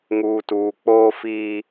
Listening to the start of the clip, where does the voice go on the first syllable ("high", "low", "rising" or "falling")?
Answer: low